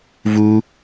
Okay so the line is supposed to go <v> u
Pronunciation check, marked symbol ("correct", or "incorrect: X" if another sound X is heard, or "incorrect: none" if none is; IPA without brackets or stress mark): correct